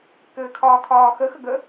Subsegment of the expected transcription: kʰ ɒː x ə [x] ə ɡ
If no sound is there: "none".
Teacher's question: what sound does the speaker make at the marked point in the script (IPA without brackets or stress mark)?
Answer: x